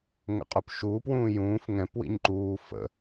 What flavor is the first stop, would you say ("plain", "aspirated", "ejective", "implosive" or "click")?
ejective